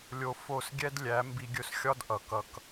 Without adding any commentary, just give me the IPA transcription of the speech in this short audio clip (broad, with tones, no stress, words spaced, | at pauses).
lʲo˧ fo˦˨sɡʲɛ˦d lʲæ˨˦ mbi˧ɡʲɵ˧s xʲɒ˦d ʔʌ˨ kʌ˧k